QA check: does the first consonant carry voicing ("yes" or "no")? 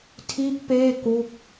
no